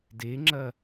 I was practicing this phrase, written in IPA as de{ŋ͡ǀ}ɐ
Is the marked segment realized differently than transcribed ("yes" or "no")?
yes